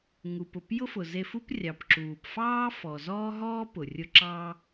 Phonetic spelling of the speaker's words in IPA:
ŋu˩pʊ˩p jʊ˥fʊ˩ ze˧f u˥p rʲɑ˩pǁuː˩p fɑː˥fɔ˩ zɔː˥ ɦɔː˥ pʊ˩rʲʊ˧ ǁɑː˧

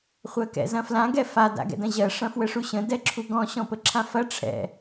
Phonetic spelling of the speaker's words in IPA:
χʷɜkɛ̰zɐ̃flã ɡɛfa da̰ɡɛ̰dɐ̃ʑɜ ʂɐ̃fwəʂuɕə̃ dɛǁʰuɡɔ̃ ɕɔ̃pəǁʰãfɐ ʈ͡ʂʰɛ̰

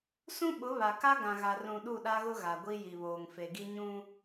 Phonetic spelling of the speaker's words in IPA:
sũ˦ɓʊ˨˦ βa˨ka˦ ɡã˨ɣa˨rũ˨ ɗu˦˨ɗa˦ɣʊ˦ ɣa˨ɡʷi˦ji˨βoː˨ŋ fe˨ɡi˦ɲũ˦

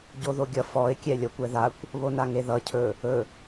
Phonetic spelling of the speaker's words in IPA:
ɟoðoɡʲʌ fɔɪ̯ kʲɛlʲʌkʷɛðakʷ | βonaŋeðʌ cʰɵ | ɵ

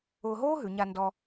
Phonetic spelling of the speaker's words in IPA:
ʊː˧ɦoː˥ɦʉ˩˧ɲa˧ ndɔ˧

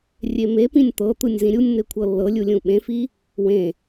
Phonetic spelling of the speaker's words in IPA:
rʲemepĩnʲ t̪ɤ t̪ɯnʲzĩɾʲunʲn̪e kʷʰɤlːɤlʲu lʲũɓẽfi | wẽ

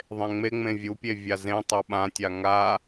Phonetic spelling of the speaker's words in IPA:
ðˤẽŋ͡meŋ͡mẽ vʲupʲe vʲazẽ tˤɤɓã tʲaŋa

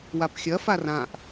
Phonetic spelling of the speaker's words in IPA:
wapxʲɐ farãʔ

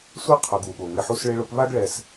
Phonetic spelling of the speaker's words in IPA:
sʷe˦ qʰʊ˧ ɡu˨ɠo˨ŋɪ˧ħu˦s ɭɪ˧ɭʊ˧pβa˦ɡ ɭɛ˦s

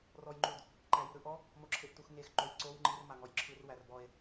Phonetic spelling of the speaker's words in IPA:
rɔjŋ͡ǃud | ǃæjiɾɯʔɔ | moǁʰeʔtuxŋex ǃojǀow ŋ͡ǃir maŋɔjǁʰɯr wærbɔe̯

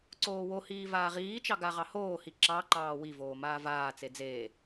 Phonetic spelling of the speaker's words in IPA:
ǀoːwohiː vaːʁiːt͡ʃɑ ɡaʁɑhoːhi ǁɑǃɑː wivoː maːvaːt͡se d͡zeː

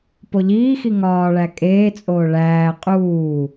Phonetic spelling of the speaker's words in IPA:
poʎiːxi ŋɒːɭæ kʼeːt͡sʼoː ɭæː qʼuː

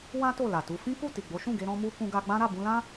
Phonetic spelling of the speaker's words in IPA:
wã˦ to˦˨la˨tu˧ fĩ˦ku˦˨ ti˨ɡ͡bo˨˦ʃũ˦˨ɡe˧ ɾɔ̃˧mu˧ kũ˧ɡa˧ɡ͡bã˦ ɾa˦˨bũ˧lã˦

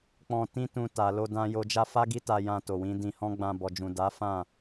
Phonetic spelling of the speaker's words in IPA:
k͡pɔ̃˧tĩ˦tũ˧ ta˨lo˧ dã˦jo˦ d͡ʒa˦fa˦ɡi˦ta˧ jã˧to˨wĩ˨˦ dĩ˧hɔ̃˦ ɡ͡bã˧bɔ˨d͡ʒũ˨ da˨˦fã˦˨

